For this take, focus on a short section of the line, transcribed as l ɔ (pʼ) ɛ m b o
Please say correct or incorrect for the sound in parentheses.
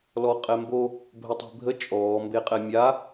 incorrect